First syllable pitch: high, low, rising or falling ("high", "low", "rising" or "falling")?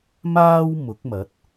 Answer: high